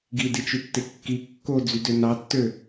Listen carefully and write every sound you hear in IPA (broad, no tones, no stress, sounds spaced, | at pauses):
ɡ i d i t͡ʃ y tː e kː i kː o d͡z y d ø n ɑ tː ø